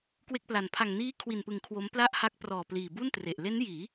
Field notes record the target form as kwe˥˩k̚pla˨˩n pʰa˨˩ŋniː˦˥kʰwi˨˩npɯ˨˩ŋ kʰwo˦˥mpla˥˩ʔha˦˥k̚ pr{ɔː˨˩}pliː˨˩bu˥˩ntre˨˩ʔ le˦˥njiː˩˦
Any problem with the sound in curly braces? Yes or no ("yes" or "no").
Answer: no